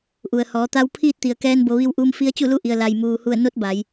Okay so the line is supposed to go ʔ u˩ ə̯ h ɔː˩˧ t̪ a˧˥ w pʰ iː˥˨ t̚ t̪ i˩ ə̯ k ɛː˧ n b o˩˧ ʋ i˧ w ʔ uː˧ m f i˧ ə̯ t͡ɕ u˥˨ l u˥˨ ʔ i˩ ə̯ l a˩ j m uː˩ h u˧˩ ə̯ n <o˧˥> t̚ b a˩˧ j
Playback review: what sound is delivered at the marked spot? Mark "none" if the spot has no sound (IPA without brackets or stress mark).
o˧˥